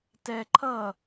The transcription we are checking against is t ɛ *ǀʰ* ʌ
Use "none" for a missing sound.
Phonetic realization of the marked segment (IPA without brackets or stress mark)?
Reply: ǃʰ